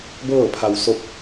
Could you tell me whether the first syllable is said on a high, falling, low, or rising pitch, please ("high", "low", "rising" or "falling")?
falling